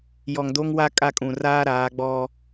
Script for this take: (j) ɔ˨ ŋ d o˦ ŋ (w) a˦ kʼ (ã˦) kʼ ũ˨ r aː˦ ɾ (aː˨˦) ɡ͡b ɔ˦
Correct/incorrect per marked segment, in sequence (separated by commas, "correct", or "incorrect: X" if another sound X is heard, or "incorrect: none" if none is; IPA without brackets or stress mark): correct, correct, incorrect: a˦, correct